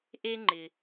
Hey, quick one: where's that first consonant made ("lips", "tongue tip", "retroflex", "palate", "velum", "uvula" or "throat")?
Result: throat